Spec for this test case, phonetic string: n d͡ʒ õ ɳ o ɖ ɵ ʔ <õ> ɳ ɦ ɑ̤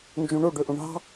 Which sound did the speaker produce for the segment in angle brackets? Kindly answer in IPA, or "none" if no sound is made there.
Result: õ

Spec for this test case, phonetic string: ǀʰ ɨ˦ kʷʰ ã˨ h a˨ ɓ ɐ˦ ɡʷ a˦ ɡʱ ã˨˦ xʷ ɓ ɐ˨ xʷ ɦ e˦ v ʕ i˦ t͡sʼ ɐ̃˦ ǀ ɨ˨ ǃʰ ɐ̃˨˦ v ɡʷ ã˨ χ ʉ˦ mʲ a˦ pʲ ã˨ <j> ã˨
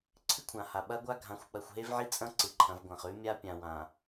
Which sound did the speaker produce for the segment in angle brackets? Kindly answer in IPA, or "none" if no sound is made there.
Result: w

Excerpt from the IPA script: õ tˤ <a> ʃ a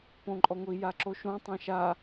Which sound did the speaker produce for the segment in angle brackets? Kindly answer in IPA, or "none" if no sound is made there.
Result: ã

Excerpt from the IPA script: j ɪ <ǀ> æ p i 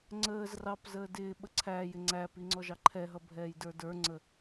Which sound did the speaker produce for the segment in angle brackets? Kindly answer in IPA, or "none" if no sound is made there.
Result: ŋ͡ǀ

